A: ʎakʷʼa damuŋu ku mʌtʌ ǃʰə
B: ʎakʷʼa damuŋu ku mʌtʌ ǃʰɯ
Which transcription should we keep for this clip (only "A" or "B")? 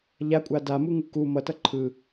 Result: B